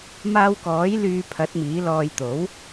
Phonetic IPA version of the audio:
m aː˧ w k ɔː˨˥ j l yː˧ pʰ ɐ˨˥ t̚ m iː˨˥ l ɔː˧ j t̪ o˨˥ w

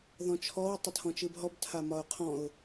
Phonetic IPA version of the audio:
ð ɔ̃ t͡ʃʰ ɔ w tˤ ə tʰ ɔ̃ t͡ʃ ɨ b ɦ ɔ b tʰ a m ɒ ʊ̯ qʰ ɔ̃ ʊ̯

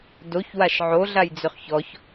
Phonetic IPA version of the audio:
d o ç w a ʃ ʕ o ɮ a j d͡z ø χ ç ɔ ç

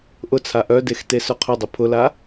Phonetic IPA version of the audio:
ʔ ʊ t͡sʰ a ʔ œ d e x t e s œ qʰ ʊ dˤ ʊ pʰ ʊ l a

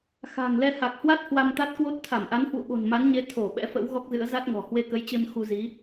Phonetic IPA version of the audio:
x a̤ː˨˩ ŋ l ɛ˧ h a˨˩ k̚ h w a˦˥ t̚ h w a˧ m t̪ a˦˥ t̚ k w o˦˥ t̚ t̪ʰ a˧˩ m ʔ a˨˦ n h w ṵ˧˨ ɓ o̤˨˩ n m a˨˦ n ɲ e˨˦ t̪ʰ o˧˩ ɓ ɛ̰˧˥ f ə̰˧˥ w ɣ ɔ˦˥ k̚ z ɨ̰˧˥ ə̯ z a˦˥ t̚ ŋ ɔ̤˨˩ h w e˧ k ə˨˦ j t͡ɕ e˧ m x u˧ z i˨˦

